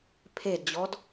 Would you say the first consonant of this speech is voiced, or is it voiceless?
voiceless